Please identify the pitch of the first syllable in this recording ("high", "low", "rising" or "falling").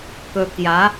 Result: low